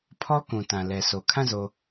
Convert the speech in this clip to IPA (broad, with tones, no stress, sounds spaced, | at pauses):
pʰ ɔ˦ k ũ˨ t ã˨ l ɛ˨ sʰ o˨ kʰ ã˦˨ z o˨